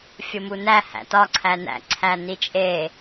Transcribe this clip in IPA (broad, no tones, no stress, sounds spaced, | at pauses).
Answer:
fʲ o m u n æ h æ̰ t ɒ ǀʰ æ n æ̰ ǀʰ æ n i t͡ʃʼ e